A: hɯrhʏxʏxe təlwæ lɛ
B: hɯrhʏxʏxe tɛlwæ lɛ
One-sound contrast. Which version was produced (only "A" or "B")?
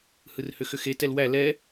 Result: B